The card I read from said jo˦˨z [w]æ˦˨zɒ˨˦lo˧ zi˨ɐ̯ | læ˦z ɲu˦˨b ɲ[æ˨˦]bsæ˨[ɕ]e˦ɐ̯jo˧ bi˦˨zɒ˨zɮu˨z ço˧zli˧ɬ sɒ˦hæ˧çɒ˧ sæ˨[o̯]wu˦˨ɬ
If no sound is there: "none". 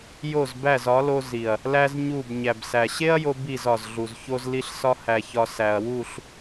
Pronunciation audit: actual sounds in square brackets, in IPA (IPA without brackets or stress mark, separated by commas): b, æ˨, ɕ, ɐ̯